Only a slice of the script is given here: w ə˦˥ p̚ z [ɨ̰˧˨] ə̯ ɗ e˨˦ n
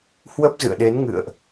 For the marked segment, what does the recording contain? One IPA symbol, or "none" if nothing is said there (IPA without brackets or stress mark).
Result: ɨ̰˧˨